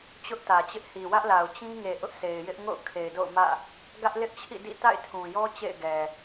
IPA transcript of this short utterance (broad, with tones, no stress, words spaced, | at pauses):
t͡ɕʊ˦ʔtä˨t͡ɕɪ˦ʔ hi˨wä˦ʔla˨ʊ̯ t͡ɕĩ˦ŋe˨ ʔʊ˦ʔse˨ɪ̯jɪ˦ʔ ŋo̰˦˨ʊ̯ kʰe˨ɪ̯do̰˦˨ʊ̯mä̰˦˨ | ɡä˦ʔlɪ˦ʔt͡ɕʰḭ˦˨ dḭ˦˨ ta̰˦˨ɪ̯tʰũ˨jɔ˦ t͡ɕḛ˦˨ɪ̯ɡɛ˨